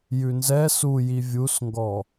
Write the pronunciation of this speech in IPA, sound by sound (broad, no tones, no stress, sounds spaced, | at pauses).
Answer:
j ʉ n z ɛ s u j i vʲ u s ŋ ɡ ɔ